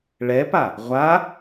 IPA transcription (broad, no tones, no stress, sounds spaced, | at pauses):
ɭ ɛ p a | ʁʷ a